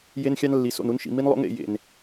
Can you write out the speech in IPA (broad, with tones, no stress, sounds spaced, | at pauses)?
j e˦ n xʲ ɑ˦ n lː i˨ s o̰˦˨ n u˦ n ʃ ḭ˨ m i˦ n lˠ o̰˦ ŋ ḛ˦˨ j ḛ˨ n